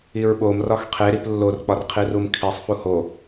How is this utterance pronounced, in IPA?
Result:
i ɹ ɓ o m r ɒ x qʰ e ɾ i p lː o r k͡p ɒ r qʰ i r u m kʰ i sˤ f u h o

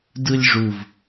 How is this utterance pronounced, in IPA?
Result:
d ɯ lʲ ʐ u v

